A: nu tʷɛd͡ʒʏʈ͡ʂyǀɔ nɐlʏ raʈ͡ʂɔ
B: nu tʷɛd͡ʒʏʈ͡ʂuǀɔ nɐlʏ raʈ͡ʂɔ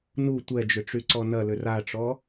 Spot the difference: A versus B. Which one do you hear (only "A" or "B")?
A